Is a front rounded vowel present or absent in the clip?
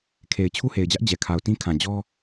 absent